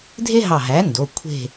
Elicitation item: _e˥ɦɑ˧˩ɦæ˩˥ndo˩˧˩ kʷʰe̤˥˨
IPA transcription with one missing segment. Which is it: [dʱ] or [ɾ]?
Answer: dʱ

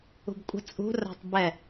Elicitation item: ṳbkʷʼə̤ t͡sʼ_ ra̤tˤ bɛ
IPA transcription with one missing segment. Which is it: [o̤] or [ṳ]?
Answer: ṳ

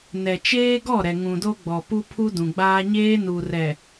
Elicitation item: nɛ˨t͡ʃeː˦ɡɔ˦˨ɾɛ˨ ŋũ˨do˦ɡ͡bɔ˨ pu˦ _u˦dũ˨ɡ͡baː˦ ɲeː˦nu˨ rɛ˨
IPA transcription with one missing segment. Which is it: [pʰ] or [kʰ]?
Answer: pʰ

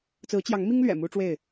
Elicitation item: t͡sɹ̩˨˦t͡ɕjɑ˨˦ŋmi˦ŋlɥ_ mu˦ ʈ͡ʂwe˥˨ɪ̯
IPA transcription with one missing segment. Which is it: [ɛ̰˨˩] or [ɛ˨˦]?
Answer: ɛ̰˨˩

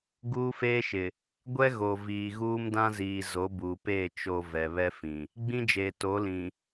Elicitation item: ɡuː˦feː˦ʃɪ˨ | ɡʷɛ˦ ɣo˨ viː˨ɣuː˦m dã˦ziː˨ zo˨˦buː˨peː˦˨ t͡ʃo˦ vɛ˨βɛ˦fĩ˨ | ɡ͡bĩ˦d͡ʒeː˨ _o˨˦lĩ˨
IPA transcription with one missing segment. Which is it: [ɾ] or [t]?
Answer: t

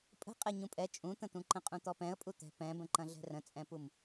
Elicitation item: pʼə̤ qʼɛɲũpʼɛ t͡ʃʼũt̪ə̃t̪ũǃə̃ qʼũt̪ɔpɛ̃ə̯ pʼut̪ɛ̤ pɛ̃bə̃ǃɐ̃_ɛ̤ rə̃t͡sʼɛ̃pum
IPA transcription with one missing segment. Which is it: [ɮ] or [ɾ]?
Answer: ɮ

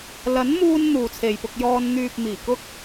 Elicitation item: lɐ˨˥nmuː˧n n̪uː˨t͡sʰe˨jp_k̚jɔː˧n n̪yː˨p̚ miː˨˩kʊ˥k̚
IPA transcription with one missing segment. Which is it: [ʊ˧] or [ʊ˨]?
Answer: ʊ˧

